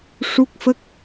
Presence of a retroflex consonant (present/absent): present